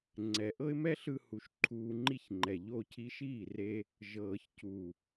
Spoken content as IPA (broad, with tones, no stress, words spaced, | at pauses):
ŋ͡ǀɛ˨ ʔɤ˦ɪ̯mɛ˦ɬɯ˧ hu˨˦ʃǃʰuː˧ŋ͡ǃi˦çŋ͡ǃɛ˨ ʎo˧cʰi˧ʃiː˦˨ re˦ | ʒɤː˨çcu˨